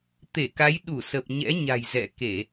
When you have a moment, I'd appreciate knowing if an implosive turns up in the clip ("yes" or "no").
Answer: yes